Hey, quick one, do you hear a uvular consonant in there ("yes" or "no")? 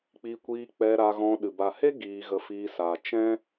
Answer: no